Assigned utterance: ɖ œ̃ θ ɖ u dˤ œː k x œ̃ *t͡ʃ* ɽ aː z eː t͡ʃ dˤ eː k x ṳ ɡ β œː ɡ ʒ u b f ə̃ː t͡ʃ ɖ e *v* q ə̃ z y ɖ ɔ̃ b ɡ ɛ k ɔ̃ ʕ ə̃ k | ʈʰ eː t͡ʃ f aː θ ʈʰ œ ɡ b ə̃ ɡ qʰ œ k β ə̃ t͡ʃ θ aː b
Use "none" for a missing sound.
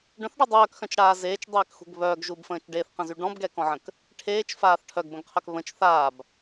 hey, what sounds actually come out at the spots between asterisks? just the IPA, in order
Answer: t͡ʃ, θ

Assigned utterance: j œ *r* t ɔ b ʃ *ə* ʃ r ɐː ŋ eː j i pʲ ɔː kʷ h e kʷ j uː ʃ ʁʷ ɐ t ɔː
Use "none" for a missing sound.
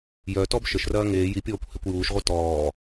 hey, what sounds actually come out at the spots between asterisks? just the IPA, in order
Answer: none, ə

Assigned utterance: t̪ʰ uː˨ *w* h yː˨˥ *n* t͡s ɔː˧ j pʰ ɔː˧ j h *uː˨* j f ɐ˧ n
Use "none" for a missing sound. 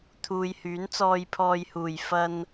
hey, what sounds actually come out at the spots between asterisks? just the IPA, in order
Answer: j, n, uː˨˩

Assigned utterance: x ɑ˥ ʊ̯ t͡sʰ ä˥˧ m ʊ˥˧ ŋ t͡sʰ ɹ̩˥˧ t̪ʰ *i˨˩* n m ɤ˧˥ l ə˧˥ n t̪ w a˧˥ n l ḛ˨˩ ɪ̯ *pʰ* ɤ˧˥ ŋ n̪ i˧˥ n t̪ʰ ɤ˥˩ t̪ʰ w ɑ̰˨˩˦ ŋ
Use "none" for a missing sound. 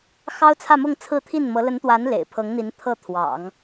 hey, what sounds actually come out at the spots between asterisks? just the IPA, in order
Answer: i˥˩, pʰ

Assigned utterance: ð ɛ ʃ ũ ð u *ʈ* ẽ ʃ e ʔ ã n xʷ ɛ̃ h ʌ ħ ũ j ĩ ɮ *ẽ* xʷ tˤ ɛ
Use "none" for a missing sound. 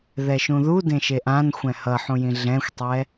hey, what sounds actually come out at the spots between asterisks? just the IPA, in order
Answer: d, ɛ̃

